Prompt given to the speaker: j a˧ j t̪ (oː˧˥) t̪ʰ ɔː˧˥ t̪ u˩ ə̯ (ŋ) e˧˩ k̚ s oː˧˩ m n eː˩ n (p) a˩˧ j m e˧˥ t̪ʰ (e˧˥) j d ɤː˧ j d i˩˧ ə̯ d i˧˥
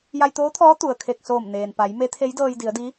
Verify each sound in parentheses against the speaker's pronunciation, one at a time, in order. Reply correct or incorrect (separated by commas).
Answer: correct, incorrect, correct, correct